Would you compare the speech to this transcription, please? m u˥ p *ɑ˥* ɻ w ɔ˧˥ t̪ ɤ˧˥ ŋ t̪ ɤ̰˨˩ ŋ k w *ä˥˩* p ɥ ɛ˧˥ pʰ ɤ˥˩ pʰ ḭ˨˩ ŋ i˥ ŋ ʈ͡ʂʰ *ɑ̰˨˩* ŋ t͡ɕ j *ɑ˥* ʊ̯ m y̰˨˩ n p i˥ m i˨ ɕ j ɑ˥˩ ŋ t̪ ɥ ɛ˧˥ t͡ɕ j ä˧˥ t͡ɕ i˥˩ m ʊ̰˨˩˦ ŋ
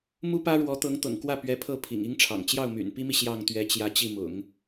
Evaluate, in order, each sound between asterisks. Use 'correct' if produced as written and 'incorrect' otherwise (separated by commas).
incorrect, correct, correct, incorrect